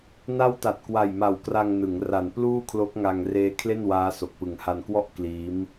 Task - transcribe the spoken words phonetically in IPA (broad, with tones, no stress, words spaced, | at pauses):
na˦˥wta˨˩t̚kwa˨˩jma˨˩w kra˧ŋnɯ˩˦ŋ ra˨˩npluː˥˩kʰlo˦˥k̚ŋa˧ŋ reː˦˥kʰle˥˩nwaː˦˥so˨˩k̚ pɯ˨˩ŋha˧nkwɔ˥˩ʔ kliː˦˥m